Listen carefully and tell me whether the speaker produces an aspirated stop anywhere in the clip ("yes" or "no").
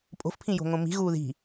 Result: yes